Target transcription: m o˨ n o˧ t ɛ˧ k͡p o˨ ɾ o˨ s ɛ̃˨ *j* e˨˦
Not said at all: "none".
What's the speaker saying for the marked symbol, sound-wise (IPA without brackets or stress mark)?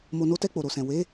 w